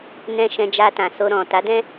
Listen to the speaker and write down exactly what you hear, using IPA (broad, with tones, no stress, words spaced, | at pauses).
nɛ̃˧ ʃɛ̃˧d͡ʒa˧tã˨so˧ ɾɔ̃˨ ta˨˦dɛ̃˦